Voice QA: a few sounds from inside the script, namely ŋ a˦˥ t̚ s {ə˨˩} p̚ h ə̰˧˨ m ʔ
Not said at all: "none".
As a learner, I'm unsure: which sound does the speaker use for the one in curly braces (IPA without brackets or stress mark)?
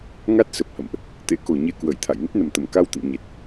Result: ə˨˩